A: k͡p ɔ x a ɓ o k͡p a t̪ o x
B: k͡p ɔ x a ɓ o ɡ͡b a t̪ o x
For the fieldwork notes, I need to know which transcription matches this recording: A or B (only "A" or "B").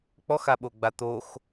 B